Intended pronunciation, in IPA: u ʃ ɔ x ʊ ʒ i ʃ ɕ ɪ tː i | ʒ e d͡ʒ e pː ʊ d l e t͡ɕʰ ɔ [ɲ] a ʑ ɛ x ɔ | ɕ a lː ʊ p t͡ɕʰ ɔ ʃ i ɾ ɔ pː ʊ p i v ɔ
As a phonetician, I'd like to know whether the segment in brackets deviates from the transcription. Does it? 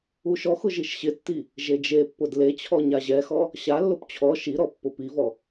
no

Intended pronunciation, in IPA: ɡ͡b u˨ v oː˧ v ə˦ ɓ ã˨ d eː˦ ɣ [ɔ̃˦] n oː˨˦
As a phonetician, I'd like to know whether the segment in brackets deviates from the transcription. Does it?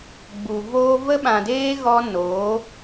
yes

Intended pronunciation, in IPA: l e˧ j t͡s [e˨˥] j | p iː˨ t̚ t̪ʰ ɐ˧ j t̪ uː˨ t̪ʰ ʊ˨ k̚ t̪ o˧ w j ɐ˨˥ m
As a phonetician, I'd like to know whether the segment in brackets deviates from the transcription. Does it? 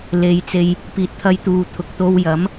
yes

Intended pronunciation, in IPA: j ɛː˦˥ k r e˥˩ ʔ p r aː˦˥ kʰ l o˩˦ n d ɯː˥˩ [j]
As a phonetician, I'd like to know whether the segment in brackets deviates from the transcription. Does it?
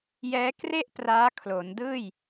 no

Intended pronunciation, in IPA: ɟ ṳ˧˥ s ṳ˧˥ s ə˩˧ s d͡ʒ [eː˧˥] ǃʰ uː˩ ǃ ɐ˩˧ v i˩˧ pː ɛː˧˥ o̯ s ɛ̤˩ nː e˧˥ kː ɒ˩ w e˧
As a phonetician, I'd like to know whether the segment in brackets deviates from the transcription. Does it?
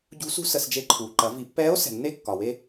yes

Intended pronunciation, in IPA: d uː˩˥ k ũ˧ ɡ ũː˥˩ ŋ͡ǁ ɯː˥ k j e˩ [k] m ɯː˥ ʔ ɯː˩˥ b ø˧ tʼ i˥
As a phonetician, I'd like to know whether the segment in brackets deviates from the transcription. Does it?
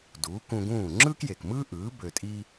no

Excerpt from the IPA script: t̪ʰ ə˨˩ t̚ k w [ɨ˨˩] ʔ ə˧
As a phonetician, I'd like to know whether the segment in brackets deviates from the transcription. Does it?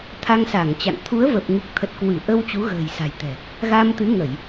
yes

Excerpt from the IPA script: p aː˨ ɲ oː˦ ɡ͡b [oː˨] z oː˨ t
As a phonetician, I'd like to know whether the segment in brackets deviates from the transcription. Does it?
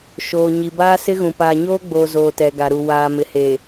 no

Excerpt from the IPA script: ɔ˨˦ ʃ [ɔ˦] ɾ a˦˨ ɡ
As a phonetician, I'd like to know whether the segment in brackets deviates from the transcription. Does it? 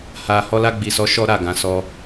no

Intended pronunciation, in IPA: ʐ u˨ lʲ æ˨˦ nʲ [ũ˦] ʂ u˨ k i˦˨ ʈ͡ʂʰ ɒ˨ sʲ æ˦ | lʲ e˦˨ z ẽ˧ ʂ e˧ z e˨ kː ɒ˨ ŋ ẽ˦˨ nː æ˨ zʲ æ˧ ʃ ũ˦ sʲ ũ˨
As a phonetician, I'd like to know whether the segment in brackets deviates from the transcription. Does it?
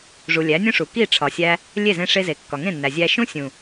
no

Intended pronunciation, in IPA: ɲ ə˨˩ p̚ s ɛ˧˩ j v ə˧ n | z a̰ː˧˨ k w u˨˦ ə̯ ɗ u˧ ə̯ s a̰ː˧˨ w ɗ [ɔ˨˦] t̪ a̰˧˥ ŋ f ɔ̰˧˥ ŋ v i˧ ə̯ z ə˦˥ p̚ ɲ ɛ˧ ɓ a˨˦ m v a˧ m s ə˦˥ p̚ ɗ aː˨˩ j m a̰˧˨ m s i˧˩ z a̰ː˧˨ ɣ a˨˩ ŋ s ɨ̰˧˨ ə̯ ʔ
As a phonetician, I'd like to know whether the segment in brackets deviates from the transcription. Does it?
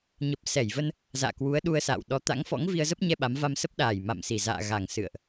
no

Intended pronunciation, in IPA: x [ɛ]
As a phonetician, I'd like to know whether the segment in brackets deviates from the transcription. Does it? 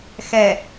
no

